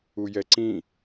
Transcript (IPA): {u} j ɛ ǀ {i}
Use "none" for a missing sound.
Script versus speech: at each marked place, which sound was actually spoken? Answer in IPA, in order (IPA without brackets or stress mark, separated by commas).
u, ĩ